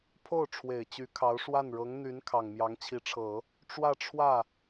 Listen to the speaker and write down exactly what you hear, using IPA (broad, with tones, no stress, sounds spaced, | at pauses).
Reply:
pʰ o˥˩ ʊ̯ ʈ͡ʂʰ w e˨˩ ɪ̯ t͡ɕ y˧˥ kʰ ɑ˧˥ ʊ̯ ʂ w a˥˩ n ɻ ɤ˧˥ ŋ n̪ y˧˥ n kʰ ɑ˨˩ ŋ m j ɑ˧˥ ŋ t͡ɕʰ i˧˥ ʈ͡ʂʰ ɤ˨˩˦ | ʈ͡ʂ w ä˥˧ ʈ͡ʂʰ w ä˥˩